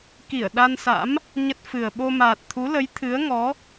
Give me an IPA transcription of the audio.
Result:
ki˧˩ə̯ɗa˧nsa̰˧˥m | ɲə˦˥t̚fɨ˨˩ə̯ ɓo˧maː˨˩t̚t̪ʰu˨˦lə˨˦j t̪ʰɨ˨˦ə̯ ŋɔ˨˦

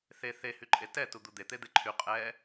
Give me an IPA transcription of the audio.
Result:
θe θe hyǃʼetɛ tud̪ud̪e t̪ed̪eǃʰy qʼɛ

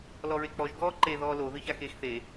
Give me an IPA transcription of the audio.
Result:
lɔɹek͡pɔʒ ɡɔːǃe ðɔːlo ðɨçaxeːxθe

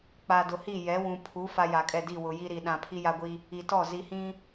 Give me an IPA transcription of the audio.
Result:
k͡pa˨dʊ˨hi˦˨ jɛ˨˦wũ˨ pʰu˨˦ fa˦ja˨kʼɛ˦˨ di˦˨wʊ˨ji˦ɾi˨ ɗã˨pʰi˦ja˦ɡʷi˦ | i˨tɔ˦˨ zi˨hĩ˦

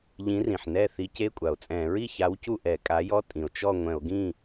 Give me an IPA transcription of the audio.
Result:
ʎĩ˨˥rĩ˩ħ nɛ˥˨ θi˨˥ce˧˥˧kʷʼa˩o̯t͡sʼɛ̃˧˩˧ ɹi˥˨ça˨˥w cu˥˨ʔɛ˧˩˧kʼa˨˥jɔ˧˥˧ tʼĩ˩o̯t͡ʃɔ˥˨ŋʷɛ̃˧˩˧o̯ ɡĩ˥˨

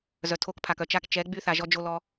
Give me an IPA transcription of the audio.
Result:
zœ˨tʰo˦k pʰa˨kœ˨ t͡ʃa˦k t͡ʃɛ˨˦ɡ͡by˦ θa˨ʒɔ˦d͡ʒo˦lɔ˦

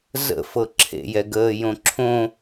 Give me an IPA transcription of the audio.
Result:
zə̰fɤ ǁʰḛjɛɡəːjõ ǁʰõ

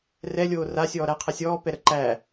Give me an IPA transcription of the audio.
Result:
rɛlʲoː ra sʲɔːɾæqʰɛ sʲɔːpɛ ɾə ǃæ

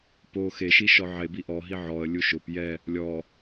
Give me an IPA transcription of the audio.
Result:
po xeʃi ʃɔʕebi ʔɔɦi ʕɔə̯lʲu ʃʊp jɛ | lʲɔ

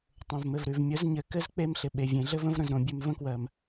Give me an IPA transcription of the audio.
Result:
tˤõ˨vmɘ˨vɾʉ˨v mʲə˨˦zɲɘ˨ kɘ˦z k͡pe˦mɬɪ˨ ɓe˨vʲẽ˨ɮɘ˦və̃˦v ɾə̃˨z ɾõ˨bʲʉ˨m və̃˦kwɜ˨m

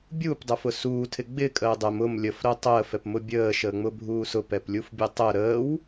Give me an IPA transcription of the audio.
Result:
bʲuːpdˤəfʊ suːtʰɪ ɡ͡bɪkʼəː dˤɛm ʊm lʲəfɾəː tˤəːfɛpmʊ bʲəːʃəːŋ͡mʊbʱuː sʊpɛplʲufbʲɛ tˤə ɾəːw

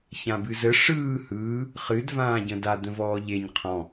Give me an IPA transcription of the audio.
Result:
çãbɨzə ʂɯː hɯː | χɨd vãːɟə̃da d̪ə̃vɔːʎeɲ qʰɔ̃

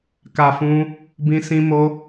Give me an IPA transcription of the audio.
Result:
ka˨ fũ˧ | bĩ˧sĩ˧mo˧

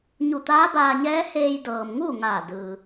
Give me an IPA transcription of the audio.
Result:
ɲu˧˩t̪aː˧˥baː˧ɲɛː˧˥ heː˧jdɤː˩mŋuː˥˨ ŋaː˧˩dɯː˩

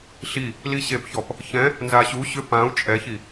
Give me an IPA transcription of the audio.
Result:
ɬi | liɕepçɔp | çɛ̃ | nzaɕu ɕʏ pãu̯ t͡ʃʼɛçi

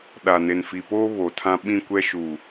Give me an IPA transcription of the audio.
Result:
ɗa˨ne˨nfi˨poː˦ βo˨tʰã˦ ɓĩ˦˨kʷɛ˦ʃu˨

